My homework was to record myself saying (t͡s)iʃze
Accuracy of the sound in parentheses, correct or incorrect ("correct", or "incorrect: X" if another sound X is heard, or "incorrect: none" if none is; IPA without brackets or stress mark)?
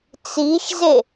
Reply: correct